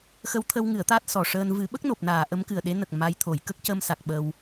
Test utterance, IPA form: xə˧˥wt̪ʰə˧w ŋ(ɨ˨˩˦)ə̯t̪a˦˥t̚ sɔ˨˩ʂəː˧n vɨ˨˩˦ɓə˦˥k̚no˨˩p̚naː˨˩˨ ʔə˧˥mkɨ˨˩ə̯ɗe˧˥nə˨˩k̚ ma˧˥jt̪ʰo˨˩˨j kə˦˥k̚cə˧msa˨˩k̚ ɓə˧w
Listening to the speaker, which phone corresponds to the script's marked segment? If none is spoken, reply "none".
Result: ɨ˨˩˦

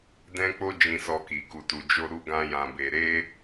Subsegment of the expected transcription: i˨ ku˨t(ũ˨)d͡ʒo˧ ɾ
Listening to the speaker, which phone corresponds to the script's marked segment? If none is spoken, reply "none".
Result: u˨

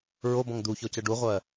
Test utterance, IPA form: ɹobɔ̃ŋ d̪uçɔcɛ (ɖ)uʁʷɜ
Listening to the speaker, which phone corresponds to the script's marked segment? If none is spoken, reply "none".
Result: ɖ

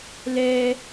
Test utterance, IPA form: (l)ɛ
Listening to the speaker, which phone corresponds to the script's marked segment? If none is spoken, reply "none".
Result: l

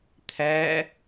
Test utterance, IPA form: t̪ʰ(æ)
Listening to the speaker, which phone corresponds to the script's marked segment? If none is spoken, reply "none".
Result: æ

